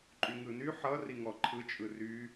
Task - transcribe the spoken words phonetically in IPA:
ǃʼ y ŋ ɯ n y ħ ʌ r i ŋ ɔ ǃʰ ɯ t͡ʃʼ ɯ r y

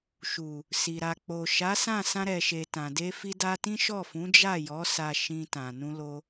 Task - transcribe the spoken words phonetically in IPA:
ʃ u˨ | s i˨ ɾ a˨ k͡p o˨ ʃ a˨˦ s ã˦˨ s ã˧ ɾ ɛ˨ ʃ e˨ t ã˨ d e˧ f i˧ d a˧ t ĩ˦ ʃ ɔ˦˨ f ũ˨˦ d͡ʒ a˦˨ j ɔ˨˦ s a˧ ʃ ĩ˧ t ã˨ n ũ˧ l o˧

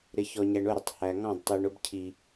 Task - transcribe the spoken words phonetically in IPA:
ɾ ɪ˨ ç ɔ˨ ɲ æ˨ ɳ ʊ˦˨ ɾ ɪ˨ tˤ h æ˨ ŋ ɑ̃˦˨ d tˤ i˨ ɳ ʊ˦ b cʰ i˨

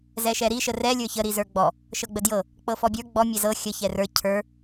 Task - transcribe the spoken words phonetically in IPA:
z ɛ ʃ ɛ ɾ i ʃ ə r ɛ lʲ ə˞ ç ə ɾ i z ə˞ ɡ͡b ɔ | ʃ ɤ ɡ͡b ə d j ɤ | k͡p ɤ f ɔ bʲ ə˞ ɡ͡b ɔ mʲ ɛ z ɤ xʲ ə ç ɛ r ə˞ cʰ ə˞

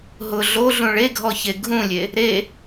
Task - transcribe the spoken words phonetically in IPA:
ɦ ʊ ɮ o ɮ ũ ɭ e ɡʱ ɔ ç e ɡʱ ũ lʲ e | ɾ e

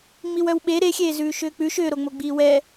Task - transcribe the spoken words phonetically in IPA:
ŋ͡m i w œ w ɓ e ɾ e xʲ eː z ʉː ʃ ʏː k͡p ʉ ʃ ʏː ɾ o ŋ͡m o ɡ͡b iː w ɛ

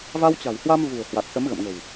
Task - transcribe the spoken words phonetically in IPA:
v a˧ w t͡ɕ a̤˨˩ w h w a˧ m v ṳ˨˩ ə̯ h w a˨˩ t̚ s ə˨˦ m ɣ ə̰˧˨ m ŋ ə̤˨˩ w

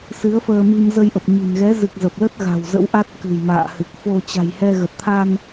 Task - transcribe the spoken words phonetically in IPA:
s ɨ˨˦ ə̯ f əː˧ m i˧ m z ə˧ j ʔ ə˨˩ p̚ ɲ i̤˨˩ n ɣ ɛ˨˦ z ɨ˨˩ k̚ z ə˨˩ p̚ l ə˦˥ t̚ ɣ a̤˨˩ w z ə̰˧˥ w ʔ a˦˥ t̚ k ɨ̤˨˩ j m a̰ː˧˨ h ɨ˨˩ k̚ f o˧ t͡ɕ a̤˨˩ j h ɛ˧ ɣ ə˨˩ t̚ t̪ʰ a˧ n

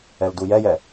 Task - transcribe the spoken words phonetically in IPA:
ɛ l d u j ɛ j ɛ

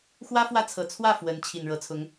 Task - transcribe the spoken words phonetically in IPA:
x w ä˥ f w ä˥˩ t͡sʰ ɤ˨˩ t͡sʰ w ä˥˩ f w ə˧˥ n t͡ɕʰ i˨˩ n ɻ ɤ˧˥ t͡sʰ ʊ˧˥ ŋ

